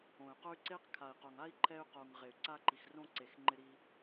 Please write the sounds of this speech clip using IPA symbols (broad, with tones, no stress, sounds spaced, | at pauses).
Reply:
õ˨ y̯ q ʊ˦ y̯ ǀ e˦ q kʰ a˨ i̯ q o˨ ŋ a˦ i̯ ǃʰ ɛ˧ y̯ q o˨ ŋ ʁ e˨ y̯ ǀ a˧ ǃ i˨ x r õ˧ ǀ e˨ x ŋ͡ǃ ɪ˧ ɾ i˧